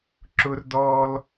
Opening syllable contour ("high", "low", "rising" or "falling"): high